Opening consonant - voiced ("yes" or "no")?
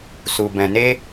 no